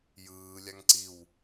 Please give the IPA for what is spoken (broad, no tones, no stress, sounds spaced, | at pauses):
j ɯː lʲ a ŋ ǀ i w